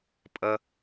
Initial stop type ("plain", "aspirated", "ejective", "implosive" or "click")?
ejective